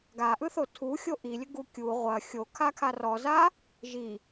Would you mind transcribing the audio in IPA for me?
ɡ a ʔ ɯ θ o tʰ u xʲ o ʔ i lʲ ə ɡ u kʲ u ʁʷ ɐ xʲ o kʰ a kʰ a r ɔ z a | ʒ i

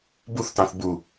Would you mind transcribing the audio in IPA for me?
b u θ t ɑ̃ θ b u

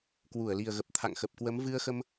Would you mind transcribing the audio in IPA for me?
k w u˧˩ ə̯ l i˨˩ ə̯ ɣ ə˨˩ p̚ t̪ʰ a̰˧˨ ŋ x ə˨˩ p̚ k w ə˨˦ m v ɨ˧ ə̯ x ə˧ m

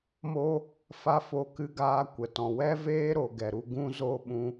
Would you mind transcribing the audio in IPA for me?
m o˦ | f a˦ f o˧ k ɨ˧ ɡ aː˧ kʷ ə˨ t ɔ̃˨ w ɛ˦ v eː˦ ɾ o˨ ɡ ɛ˨ ɾ u˧ ɡ ũ˦ z o˦ ɓ ũ˧

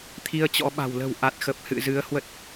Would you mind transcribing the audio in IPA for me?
t̪ʰ i˧ ə̯ t͡ɕ ɔ̰˧˥ ɓ a̤˨˩ w l ə̤˨˩ w ʔ a˨˩ t̚ x ə˨˩ p̚ h ɨ̰˧˨ z ɨ˨˦ ə̯ h w ə˦˥ t̚

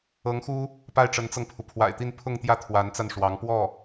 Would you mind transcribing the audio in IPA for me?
ɤ˧˥ ŋ x u˥ | p a˥˩ ɪ̯ ʈ͡ʂ ə˧˥ n t͡s ɤ˧ ŋ pʰ u˩ pʰ w a̰˨˩ ɪ̯ t̪ i˥˧ n pʰ ʊ˥˧ ŋ t̪ j ä˥˩ t̪ʰ w a˧˥ n t͡s a˧ n ʂ w ɑ˧˥ ŋ p w ɔ˥˩

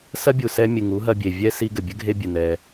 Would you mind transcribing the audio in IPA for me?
s ɐ˦ bʲ u˨ s ɛ˧ mʲ ɨ˨ ŋ u˨˦ ɦ ɐ˧ bʲ e˨ vʲ ɛ˦ s i˧ ɡ ɘ˨ bʲ ɘ˦ ɡʱ e˦ bʲ ɨ˨ n ɛ˧

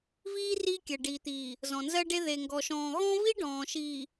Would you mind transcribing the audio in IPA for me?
v iː˦ r iː˦ kʲ ɜ˨ ɖ iː˨ t̪ iː˨ | z ɔ̃˨ n z ɜ˦ ɖ e˦ ð e˨ ŋ ɡ ɔ˨ ʃ ɔ̃ː˨ ɣ ɔ̃˦ v i˦ ɖ ɔ̃ː˨ ʃ iː˨

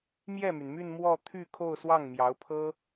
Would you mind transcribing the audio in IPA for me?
m j ɛ˥˩ m y˩ n m y˥˧ n m w ɔ˥˧ t̪ʰ y˥˧ kʰ o˥˧ ʊ̯ s w ɑ˥˩ ŋ m j ɑ˧˥ ʊ̯ pʰ ɤ˥

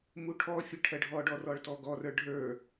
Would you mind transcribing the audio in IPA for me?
m u ʈʰ ɔ fʲ ə ʈʰ ɜ ɖʱ ɔ ɖ ɔ r ɔ ɭ t ɔ ɡ ɔ r ə˞ ɖʱ ə˞

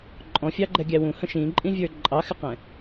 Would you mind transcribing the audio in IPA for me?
ǃʼ ɔ̃ fʲ ɑ ɡ͡ǃ ɛ ɡʲ æ w ũ h ə̃ ʃ ĩ ǃʼ ĩ vʲ ə˞ ǃʼ ɑ x ɪ q ɛ̃

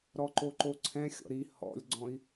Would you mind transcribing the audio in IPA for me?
ɾ ɔ ǃ o ǃ o ǀʰ ɛ̃ xʲ ɔ̰ ɾ i h ɔ̰ lʲ ɡ͡ǀ ɔ̃ i̯

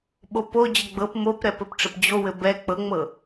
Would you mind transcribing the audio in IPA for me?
ɓ o p o d͡ʑ ə ɡ͡b ɤ p m o p ɾ ɛ p ɘ p ʈ͡ʂ ə p d͡ʑ o w ɘ b ɛ k͡p ɤ ŋ͡m ɤ

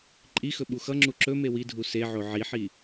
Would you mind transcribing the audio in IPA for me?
ǃʼ i x ɵ ɓ u x ʌ ŋ͡ǁ u ǁ ɵ m e w i dʱ u s e ʕ o ʕ i ħ i

